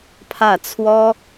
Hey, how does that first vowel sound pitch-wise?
falling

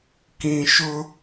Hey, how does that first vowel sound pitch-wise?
low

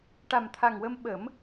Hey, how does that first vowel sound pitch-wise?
low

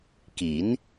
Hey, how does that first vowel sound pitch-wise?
rising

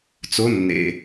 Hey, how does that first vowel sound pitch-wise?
rising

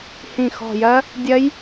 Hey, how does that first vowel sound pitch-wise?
low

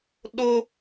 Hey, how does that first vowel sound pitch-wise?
high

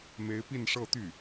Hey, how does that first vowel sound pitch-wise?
rising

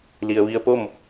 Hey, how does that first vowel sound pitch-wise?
low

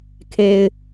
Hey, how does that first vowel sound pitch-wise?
low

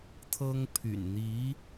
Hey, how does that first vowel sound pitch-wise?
high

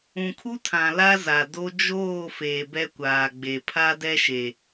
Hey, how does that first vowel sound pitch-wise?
low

